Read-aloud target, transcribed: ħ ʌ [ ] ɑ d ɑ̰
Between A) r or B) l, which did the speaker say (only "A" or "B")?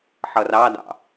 A